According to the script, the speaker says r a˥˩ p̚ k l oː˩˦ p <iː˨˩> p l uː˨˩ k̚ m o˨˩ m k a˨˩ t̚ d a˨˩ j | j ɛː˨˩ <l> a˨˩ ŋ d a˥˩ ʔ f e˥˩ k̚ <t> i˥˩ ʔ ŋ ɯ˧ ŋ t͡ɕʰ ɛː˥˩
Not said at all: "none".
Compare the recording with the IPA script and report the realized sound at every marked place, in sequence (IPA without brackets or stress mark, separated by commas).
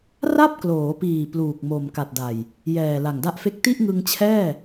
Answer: iː˨˩, l, t